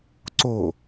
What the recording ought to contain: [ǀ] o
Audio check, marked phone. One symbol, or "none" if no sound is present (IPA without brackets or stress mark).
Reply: ǀ